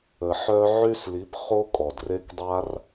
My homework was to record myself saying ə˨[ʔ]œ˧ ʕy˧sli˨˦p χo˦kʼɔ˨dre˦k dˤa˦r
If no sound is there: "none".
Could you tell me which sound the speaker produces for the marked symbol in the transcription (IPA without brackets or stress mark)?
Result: ħ